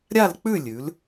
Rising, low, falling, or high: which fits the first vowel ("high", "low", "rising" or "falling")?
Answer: falling